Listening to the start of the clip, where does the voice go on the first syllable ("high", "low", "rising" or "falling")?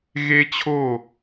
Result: high